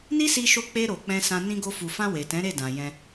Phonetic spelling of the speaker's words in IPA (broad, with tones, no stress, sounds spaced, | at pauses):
n i˦ s i˧ ʃ o˧ k͡p e˧ ɾ o˨ k͡p ɛ̃˧ s ã˧ n ĩ˧ ɡ o˧ f u˨ f ã˧ w e˨ t ɛ̃˨˦ ɾ e˦˨ d ã˨ j ɛ̃˧